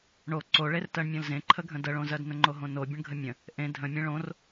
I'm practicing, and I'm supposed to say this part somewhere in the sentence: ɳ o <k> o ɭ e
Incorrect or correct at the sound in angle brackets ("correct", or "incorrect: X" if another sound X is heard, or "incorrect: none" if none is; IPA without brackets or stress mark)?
incorrect: ǀ